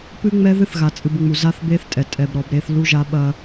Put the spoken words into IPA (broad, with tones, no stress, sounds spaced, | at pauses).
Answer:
p ɨ˦ ŋ͡m ɛ˦ ð ɨ˦ θ ɣ a˨ t͡sʼ ɨ˨ b ŋ͡m u˨ z a˦ θ b e˦ θ tʼ ɛ˨ tʼ ɛ˨ b ɾ ɔ˨ b ɾ e˦ θ l u˦ ʒ a˦ ɓ ɐ˦